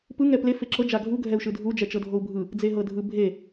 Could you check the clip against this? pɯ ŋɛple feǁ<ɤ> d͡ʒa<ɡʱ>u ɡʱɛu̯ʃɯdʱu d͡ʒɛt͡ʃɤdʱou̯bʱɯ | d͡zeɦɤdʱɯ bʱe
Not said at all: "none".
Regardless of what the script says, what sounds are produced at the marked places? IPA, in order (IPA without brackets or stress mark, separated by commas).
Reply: ɤ, ɡʱ